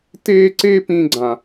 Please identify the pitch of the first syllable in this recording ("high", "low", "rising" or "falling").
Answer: high